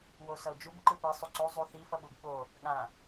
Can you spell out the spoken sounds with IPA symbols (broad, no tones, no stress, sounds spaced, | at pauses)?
w o s ʌ o̯ d͡ʒ u b ǃ ɯ p e sˤ u ǀ o zˤ u θ i f ʌ ɓ u b ɓ o | ɠ ã